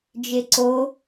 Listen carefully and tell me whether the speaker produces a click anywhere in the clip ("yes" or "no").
yes